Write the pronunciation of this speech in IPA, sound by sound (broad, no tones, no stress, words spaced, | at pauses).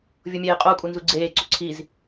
vʲomʲeːqʼou̯kʼu nzuɡ͡ǀeːǀo ǀʰiz